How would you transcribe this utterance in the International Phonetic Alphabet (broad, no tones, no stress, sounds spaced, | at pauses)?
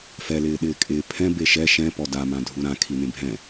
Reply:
f ɛ l ɪː ɗ ɪː kʼ ɪː pʰ ɛ̃ b e ʃ ɛ ʃ ɛ̃ p ɔ d a m ã dʱ u ɾ ã kʰ i n ẽ bʱ ɛ̃